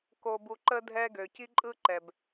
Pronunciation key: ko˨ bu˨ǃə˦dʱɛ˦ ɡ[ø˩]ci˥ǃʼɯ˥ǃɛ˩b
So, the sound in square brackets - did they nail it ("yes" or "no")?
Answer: yes